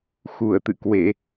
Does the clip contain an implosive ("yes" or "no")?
no